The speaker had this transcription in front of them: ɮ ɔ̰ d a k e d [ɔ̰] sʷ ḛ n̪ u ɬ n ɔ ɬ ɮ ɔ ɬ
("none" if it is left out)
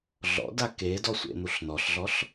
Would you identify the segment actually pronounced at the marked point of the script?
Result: ɔ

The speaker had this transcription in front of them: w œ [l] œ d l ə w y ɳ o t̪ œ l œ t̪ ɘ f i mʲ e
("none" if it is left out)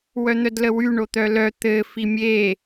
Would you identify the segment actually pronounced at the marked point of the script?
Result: n̪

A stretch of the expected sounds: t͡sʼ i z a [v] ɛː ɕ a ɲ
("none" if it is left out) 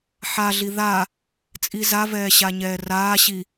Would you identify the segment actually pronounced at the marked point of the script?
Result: v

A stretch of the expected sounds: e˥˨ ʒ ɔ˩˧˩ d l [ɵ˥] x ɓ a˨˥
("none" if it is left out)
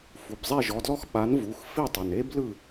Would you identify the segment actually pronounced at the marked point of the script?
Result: ɔ˥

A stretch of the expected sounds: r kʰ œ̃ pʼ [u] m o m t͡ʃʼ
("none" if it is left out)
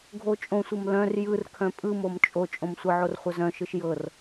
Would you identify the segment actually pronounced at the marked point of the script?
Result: ɯ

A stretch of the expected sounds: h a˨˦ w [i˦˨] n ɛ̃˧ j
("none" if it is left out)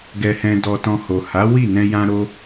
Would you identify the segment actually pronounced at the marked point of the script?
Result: i˦˨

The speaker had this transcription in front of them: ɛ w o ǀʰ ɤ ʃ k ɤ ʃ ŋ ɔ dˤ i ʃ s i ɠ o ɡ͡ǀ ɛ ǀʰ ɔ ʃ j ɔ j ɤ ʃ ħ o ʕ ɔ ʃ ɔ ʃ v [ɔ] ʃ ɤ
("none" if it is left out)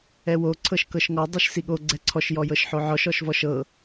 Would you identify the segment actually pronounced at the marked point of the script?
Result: ɔ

